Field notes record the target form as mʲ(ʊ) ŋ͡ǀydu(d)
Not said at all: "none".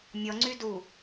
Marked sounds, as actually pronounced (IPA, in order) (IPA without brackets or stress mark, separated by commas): ɔ, none